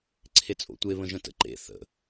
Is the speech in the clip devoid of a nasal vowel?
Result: no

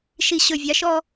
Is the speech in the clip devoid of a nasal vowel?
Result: yes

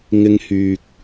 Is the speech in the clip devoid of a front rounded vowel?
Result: no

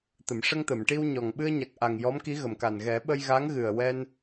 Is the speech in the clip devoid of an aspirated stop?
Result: yes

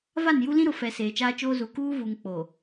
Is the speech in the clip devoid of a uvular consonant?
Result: yes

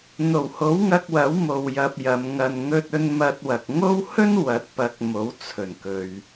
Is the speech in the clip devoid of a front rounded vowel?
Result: yes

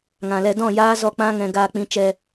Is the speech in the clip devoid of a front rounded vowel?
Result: yes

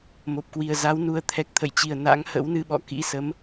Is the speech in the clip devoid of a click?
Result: yes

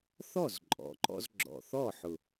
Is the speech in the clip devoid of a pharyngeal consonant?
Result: no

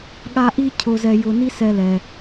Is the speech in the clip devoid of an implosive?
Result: no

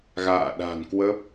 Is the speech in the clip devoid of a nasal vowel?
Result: yes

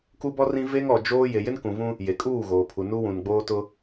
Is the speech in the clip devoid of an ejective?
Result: no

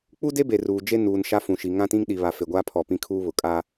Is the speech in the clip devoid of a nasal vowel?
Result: no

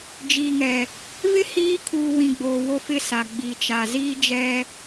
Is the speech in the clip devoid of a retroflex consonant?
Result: yes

